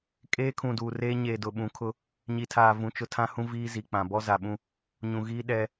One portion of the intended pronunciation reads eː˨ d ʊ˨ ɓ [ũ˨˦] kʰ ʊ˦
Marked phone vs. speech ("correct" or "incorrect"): correct